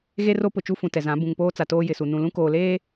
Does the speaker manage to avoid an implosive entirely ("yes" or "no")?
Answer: yes